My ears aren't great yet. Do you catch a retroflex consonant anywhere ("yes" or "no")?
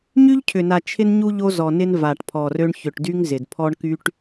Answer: yes